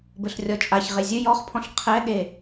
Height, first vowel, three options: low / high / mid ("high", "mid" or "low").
mid